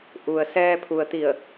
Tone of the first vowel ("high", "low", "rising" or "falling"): low